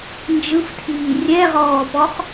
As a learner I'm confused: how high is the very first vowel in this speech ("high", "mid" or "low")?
high